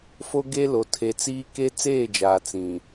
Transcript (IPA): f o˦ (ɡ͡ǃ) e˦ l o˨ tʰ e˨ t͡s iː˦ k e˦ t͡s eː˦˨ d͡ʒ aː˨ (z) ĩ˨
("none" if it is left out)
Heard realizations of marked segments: ɡ, t͡s

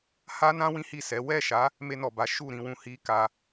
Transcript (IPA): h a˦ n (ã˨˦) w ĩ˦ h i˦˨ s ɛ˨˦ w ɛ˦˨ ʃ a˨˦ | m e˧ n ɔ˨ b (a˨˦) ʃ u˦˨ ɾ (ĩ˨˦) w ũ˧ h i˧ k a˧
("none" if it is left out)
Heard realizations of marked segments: ã˦, a˨˦, ĩ˧

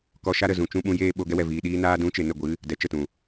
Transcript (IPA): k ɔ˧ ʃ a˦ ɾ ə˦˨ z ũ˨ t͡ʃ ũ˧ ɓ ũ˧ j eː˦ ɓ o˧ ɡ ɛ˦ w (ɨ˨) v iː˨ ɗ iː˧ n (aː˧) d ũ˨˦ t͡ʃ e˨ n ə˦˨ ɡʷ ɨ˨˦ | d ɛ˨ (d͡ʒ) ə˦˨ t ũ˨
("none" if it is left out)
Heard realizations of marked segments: ɛ˨, aː˧, t͡ʃ

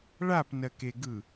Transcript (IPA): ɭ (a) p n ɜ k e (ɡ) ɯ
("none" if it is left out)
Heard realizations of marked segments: a, ɡ

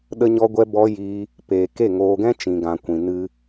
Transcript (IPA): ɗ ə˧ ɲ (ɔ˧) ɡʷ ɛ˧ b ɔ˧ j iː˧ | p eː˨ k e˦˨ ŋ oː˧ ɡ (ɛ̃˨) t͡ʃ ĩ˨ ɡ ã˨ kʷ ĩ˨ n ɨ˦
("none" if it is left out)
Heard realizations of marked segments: ɔ˧, ɛ̃˦

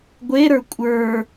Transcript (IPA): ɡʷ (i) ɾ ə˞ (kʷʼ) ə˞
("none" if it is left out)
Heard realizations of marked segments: e, kʷʼ

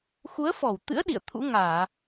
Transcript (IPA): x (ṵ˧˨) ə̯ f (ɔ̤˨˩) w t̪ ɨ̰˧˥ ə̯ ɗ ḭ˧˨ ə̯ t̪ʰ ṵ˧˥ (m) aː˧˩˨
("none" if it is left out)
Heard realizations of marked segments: u˨˦, ɔ˧˩, ŋ

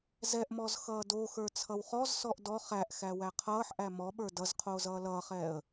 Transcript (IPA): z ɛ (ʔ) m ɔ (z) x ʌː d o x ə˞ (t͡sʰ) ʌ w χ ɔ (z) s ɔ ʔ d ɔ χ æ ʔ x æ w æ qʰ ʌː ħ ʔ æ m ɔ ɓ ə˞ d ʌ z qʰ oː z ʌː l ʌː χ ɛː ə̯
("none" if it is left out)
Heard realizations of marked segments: ʔ, z, t͡sʰ, z

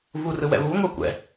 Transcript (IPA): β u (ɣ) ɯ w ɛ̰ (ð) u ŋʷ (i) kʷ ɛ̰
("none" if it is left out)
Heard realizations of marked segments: r, β, e

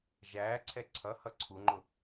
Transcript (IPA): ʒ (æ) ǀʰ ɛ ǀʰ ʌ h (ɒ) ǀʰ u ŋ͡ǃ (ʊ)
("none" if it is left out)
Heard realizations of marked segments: æː, ʌ, ʊ

